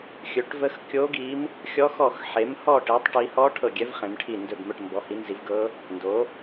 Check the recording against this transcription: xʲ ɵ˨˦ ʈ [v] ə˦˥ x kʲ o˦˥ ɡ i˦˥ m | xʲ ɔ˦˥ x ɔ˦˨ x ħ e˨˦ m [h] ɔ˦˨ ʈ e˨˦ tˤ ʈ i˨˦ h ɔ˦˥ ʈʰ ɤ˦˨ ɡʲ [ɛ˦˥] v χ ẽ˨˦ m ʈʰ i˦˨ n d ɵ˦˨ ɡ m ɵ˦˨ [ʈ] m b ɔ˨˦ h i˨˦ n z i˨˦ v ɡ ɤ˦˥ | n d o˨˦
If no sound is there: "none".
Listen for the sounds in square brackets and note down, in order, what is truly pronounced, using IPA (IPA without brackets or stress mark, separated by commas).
v, h, ɛ˦˥, ʈ